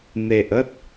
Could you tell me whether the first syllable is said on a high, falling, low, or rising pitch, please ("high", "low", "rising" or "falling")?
low